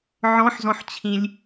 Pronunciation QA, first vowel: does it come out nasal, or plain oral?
nasal